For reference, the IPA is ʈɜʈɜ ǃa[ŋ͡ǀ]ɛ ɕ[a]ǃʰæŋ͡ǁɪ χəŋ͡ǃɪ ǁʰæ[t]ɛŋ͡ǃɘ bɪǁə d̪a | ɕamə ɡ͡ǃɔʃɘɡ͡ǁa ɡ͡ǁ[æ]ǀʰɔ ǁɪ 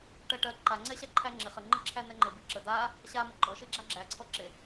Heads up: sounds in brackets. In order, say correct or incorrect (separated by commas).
correct, incorrect, incorrect, correct